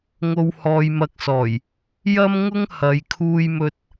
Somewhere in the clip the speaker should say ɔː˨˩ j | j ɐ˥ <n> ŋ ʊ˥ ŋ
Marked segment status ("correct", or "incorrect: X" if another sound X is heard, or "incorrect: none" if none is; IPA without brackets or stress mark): incorrect: m